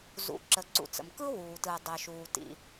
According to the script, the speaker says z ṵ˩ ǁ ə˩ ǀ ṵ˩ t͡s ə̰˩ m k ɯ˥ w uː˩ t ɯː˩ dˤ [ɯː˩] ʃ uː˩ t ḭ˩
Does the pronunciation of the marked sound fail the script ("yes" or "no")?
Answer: yes